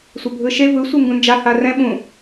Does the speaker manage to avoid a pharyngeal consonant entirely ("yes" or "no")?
yes